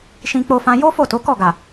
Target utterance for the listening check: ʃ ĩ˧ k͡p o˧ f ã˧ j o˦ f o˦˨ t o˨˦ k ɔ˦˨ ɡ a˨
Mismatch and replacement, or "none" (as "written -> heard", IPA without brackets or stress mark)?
none